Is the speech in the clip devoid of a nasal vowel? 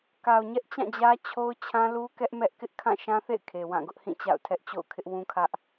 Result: no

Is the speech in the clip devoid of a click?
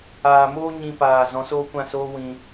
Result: yes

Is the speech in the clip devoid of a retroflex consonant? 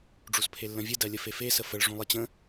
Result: no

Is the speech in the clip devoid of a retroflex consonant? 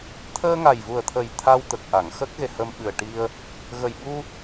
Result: no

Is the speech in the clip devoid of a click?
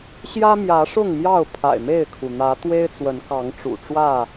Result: yes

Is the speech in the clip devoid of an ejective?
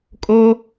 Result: no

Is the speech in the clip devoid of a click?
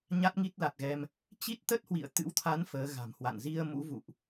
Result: yes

